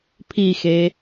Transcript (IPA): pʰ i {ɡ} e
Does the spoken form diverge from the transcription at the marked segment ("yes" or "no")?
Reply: yes